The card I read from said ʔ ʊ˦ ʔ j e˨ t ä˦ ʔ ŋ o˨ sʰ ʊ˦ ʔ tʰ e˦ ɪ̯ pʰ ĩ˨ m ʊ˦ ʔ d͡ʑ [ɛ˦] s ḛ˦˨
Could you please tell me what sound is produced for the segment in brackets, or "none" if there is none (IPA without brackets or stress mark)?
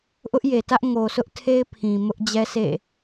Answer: ɛ˦